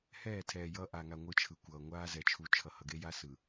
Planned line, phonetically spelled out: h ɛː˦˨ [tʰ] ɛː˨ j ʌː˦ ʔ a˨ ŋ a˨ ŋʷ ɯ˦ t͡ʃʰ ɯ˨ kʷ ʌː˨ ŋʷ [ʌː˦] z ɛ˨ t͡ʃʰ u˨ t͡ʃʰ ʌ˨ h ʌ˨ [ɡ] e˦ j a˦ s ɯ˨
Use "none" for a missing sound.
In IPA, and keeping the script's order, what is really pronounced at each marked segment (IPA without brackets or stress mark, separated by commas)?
tʰ, aː˦, ɡ